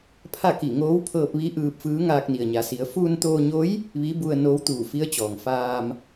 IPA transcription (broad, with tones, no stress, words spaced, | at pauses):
pʰa˥˨ki˧˩ŋoː˧˥w pʰɤː˧p̚ʋi˧˥ ʔɯː˧p̚fɯː˧˥ ŋaː˧k̚ni˩ə̯ɲa˩˧si˩˧ə̯ fuː˧nt̪oː˧ɲo˧˥j | ʋi˧˥ bu˧ə̯noː˧˥w t̪uː˧˩fi˧˥ə̯t͡ɕɔː˩ŋfaː˧m